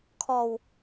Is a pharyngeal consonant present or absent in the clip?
absent